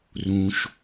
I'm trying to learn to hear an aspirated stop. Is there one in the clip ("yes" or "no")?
no